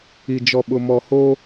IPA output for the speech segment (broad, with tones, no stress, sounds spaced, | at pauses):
i˨ d͡ʒ ɔ˨ ɓ ʊ˨ m ɔ˨ h oː˦